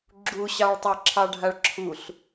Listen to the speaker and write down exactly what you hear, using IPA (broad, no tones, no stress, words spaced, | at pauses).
ɡ͡ǁuɕɑɭtˤa ǁʰɑɖʱaɭǁʰuɬ